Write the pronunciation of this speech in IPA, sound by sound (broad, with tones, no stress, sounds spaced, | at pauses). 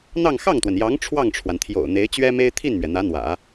n̪ ɑ˥˧ ŋ x ɑ˥˩ ŋ t̪ w ə˩ n j ɑ˧˥ ŋ ʈ͡ʂʰ w ɑ˥˩ ŋ ʈ͡ʂʰ w a˩ n t̪ʰ j o̰˨˩ ʊ̯ n̪ e˧˥ ɪ̯ t͡ɕ ɥ ɛ˥ m e˥ ɪ̯ t̪ʰ i˥˩ n m ɥ ɛ˩ n̪ ä˧˥ n̪ w ä̰˨˩˦